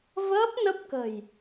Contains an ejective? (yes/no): no